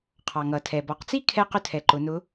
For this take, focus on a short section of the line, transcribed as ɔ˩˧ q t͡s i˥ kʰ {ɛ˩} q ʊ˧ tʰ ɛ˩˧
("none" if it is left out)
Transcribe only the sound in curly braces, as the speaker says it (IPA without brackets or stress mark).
ɛ˧